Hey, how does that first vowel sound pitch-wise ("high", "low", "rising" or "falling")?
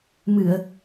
low